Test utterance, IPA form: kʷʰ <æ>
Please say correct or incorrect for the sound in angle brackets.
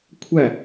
correct